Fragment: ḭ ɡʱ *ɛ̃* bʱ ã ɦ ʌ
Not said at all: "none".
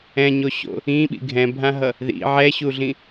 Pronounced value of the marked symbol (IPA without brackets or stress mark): ɛ̃